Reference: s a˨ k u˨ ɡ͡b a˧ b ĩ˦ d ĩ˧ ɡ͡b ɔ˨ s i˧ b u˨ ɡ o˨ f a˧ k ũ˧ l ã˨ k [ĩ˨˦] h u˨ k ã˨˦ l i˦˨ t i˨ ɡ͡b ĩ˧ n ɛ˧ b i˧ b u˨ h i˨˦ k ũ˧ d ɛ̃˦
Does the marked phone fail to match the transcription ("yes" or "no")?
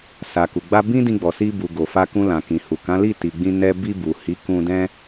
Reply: yes